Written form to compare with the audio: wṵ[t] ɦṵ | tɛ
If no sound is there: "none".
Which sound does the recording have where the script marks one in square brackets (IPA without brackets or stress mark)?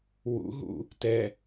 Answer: none